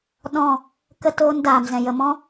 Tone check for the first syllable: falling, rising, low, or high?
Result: falling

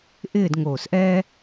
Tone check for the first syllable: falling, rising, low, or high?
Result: falling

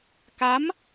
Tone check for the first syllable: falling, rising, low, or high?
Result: rising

